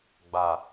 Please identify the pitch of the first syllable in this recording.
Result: low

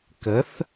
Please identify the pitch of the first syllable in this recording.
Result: rising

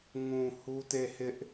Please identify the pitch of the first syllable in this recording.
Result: low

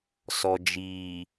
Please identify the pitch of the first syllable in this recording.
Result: low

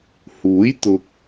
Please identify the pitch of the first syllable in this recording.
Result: rising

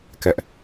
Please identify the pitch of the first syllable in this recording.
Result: high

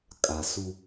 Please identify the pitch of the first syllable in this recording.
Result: low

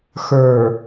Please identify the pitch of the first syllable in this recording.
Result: low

